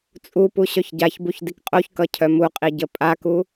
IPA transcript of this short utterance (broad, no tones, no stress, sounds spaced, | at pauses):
t͡sʼ u p u ɕ œ ç ɟ a ç b u ç d i k qʼ o ç k ʌ cʰ œ m u qʼ i ɟ ə pʼ a k u